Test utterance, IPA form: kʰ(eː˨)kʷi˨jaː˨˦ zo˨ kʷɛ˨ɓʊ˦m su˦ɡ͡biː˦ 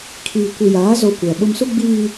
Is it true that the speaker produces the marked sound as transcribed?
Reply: no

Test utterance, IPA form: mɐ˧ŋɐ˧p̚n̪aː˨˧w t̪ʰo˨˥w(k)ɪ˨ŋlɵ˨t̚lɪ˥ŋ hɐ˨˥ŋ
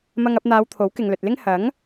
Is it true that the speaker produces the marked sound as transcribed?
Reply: yes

